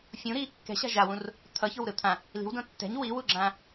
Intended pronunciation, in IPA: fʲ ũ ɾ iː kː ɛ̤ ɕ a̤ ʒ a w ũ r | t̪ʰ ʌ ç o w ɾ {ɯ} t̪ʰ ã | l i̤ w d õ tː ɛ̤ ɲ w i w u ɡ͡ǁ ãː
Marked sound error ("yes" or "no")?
no